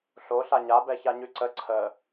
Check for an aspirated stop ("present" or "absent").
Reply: present